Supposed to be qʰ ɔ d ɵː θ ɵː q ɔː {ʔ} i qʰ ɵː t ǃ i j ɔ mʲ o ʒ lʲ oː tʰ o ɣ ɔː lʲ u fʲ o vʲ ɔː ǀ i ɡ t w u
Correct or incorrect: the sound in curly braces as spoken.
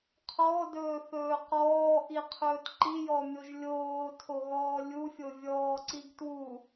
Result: correct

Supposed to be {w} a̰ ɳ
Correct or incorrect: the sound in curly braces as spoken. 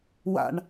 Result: correct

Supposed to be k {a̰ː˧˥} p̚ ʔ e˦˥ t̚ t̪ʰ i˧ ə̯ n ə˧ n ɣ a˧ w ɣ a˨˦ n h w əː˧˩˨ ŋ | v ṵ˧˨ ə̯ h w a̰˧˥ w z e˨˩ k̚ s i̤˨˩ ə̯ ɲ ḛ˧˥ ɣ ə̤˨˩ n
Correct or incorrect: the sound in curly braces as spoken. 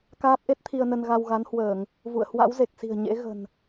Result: incorrect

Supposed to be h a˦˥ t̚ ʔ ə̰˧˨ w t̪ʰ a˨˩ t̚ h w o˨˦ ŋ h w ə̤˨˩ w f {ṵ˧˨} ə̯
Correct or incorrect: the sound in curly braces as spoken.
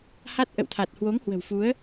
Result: incorrect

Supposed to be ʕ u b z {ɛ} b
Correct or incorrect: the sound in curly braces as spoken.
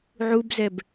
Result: correct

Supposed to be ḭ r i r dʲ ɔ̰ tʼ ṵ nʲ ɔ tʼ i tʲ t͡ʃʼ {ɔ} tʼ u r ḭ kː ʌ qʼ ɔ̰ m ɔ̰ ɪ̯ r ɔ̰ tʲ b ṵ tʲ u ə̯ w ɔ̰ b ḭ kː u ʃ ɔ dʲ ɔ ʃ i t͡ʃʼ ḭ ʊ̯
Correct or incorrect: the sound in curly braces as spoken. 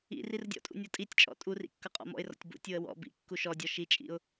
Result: incorrect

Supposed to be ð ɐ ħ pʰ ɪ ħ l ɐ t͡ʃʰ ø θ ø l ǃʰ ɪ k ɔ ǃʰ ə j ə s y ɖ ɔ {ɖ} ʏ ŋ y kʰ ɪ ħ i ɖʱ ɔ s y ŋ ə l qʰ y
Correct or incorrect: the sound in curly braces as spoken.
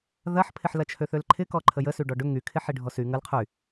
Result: correct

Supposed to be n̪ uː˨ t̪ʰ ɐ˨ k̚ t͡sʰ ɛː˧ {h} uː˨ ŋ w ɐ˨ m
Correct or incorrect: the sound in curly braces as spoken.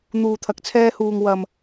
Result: correct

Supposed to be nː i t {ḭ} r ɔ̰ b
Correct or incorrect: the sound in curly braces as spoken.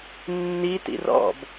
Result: correct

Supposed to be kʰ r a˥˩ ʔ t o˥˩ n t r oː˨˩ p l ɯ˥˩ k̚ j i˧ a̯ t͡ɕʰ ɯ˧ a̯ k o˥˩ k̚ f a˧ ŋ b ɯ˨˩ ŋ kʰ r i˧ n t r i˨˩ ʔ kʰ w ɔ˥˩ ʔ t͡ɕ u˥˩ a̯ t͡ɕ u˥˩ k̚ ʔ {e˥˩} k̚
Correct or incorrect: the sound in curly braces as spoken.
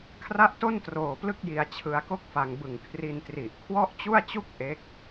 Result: incorrect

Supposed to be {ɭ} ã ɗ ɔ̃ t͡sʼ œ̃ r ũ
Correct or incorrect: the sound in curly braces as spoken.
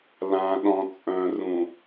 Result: incorrect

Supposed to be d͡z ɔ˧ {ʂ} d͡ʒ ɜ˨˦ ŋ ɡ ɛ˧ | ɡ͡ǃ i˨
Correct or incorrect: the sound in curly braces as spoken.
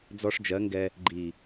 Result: correct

